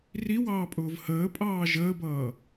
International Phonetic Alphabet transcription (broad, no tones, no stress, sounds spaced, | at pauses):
r i w ɑː pʼ ʊː v h əː pʼ ɑː ʒ əː b ʌː